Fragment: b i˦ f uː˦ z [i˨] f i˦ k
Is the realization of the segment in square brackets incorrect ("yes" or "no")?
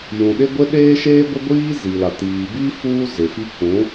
yes